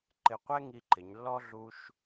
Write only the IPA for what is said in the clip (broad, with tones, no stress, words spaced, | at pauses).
ǃɪ˧˩qʷɛ˥ ŋi˧ǃɪ˩˧ɲlːɔ˥ ɮu˧ʃ